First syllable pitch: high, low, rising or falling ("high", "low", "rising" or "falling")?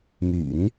low